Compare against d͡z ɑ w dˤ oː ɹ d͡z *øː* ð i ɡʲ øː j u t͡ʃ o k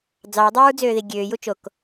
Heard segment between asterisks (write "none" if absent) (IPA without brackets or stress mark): øː